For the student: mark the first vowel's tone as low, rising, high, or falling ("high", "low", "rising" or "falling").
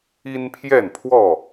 high